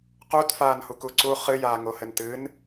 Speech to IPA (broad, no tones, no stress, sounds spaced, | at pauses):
q u t f aː n h u k u ǀ u χ ɨ j aː ŋ o h ɘ n t ɨ n